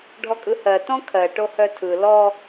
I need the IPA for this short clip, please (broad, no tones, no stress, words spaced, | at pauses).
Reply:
ɖʱɔkʼɯhɜ tɔ̃kʰɜ ʈohœtʰɯ lɔ